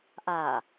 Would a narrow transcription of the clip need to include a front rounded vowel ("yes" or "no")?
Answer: no